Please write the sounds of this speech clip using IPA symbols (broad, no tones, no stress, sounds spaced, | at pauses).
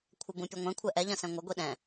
kʷʰ ɐ b ũ pʲ ɐ ŋʷ ɛ̃ kʷʰ ɛ ʔ ɛ ʎ ɐ̃ s ɛ̃ ŋʷ ɐ ɡʷ i ɗ ɛ̃